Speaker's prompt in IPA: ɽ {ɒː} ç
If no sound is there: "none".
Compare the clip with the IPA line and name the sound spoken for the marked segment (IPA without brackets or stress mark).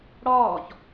ɒː